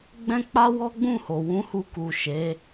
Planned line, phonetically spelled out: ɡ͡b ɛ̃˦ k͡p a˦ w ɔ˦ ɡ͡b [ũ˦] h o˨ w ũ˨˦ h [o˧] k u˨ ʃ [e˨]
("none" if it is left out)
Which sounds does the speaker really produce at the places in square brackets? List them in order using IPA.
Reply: ũ˦˨, u˧, e˨˦

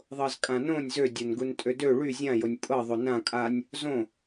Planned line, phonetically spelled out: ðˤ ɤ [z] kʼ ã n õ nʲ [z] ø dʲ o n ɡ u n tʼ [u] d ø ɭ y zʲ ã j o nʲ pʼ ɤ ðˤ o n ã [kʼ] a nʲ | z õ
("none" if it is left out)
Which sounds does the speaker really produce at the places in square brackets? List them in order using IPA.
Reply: z, z, ø, kʼ

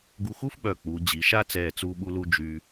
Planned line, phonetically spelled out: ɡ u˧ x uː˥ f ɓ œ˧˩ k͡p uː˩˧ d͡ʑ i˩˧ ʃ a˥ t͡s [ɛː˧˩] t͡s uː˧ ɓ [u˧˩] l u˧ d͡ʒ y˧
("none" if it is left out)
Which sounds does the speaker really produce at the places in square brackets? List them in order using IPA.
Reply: ɛː˧˩, u˧

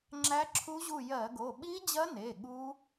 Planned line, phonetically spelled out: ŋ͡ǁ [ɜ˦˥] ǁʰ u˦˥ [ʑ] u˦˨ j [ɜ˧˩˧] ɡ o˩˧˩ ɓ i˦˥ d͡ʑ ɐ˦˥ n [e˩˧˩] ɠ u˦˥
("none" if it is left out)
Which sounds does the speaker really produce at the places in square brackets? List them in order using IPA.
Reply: æ˦˥, ʑ, ɜ˧˩˧, e˩˧˩

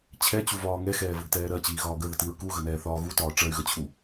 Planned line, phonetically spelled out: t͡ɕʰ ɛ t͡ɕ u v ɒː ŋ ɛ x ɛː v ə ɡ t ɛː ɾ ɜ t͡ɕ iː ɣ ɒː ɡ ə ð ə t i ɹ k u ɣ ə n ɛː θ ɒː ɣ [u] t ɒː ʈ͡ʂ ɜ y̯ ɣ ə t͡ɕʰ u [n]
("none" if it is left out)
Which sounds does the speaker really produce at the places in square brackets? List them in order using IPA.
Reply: u, none

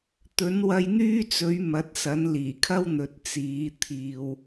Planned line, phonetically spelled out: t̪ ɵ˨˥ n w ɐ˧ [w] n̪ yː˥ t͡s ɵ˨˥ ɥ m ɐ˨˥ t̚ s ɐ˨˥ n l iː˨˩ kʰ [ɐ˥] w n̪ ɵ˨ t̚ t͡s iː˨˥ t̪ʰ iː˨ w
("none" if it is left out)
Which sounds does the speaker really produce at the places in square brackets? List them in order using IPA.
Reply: j, ɐ˥

